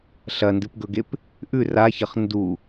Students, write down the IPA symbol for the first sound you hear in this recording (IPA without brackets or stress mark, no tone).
ɬ